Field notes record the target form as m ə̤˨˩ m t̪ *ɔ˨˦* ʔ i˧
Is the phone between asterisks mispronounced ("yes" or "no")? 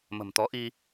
no